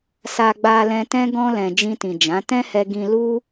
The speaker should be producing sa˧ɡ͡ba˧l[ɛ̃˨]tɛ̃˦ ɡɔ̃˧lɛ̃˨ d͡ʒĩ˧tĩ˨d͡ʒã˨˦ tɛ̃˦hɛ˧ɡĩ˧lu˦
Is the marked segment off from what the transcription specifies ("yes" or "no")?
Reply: yes